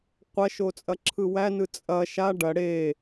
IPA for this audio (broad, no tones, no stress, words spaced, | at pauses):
qʷɐʃo t͡sʼɐǁʰɯwænɯ t͡sʼɐ ʃa ɖɐ ɽe